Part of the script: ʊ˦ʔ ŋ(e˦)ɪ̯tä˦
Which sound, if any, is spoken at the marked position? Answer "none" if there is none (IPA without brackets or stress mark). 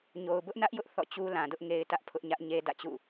e˦